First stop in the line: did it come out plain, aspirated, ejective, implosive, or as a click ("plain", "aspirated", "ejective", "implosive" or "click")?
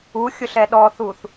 implosive